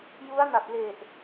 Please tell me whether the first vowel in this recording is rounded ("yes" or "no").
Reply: yes